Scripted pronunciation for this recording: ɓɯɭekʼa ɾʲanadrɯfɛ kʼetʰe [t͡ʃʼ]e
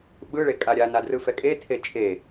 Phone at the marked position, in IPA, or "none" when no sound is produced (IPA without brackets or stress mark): t͡ʃʼ